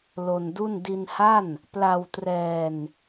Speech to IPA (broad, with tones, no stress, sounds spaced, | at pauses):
l o˧ n d u˥˩ n d i˧ n h a˥˩ n | p l a˧ w t r ɛː˧ n